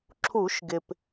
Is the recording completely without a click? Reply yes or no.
no